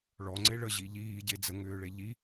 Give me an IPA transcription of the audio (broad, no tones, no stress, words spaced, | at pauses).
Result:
ɭɔŋ͡ǀe ɭəʑi ʎiːɟe d͡zəŋʏːɭe ʎi